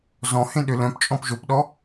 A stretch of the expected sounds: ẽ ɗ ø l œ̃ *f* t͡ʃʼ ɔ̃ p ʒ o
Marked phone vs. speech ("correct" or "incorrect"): incorrect